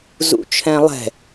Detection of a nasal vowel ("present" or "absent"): present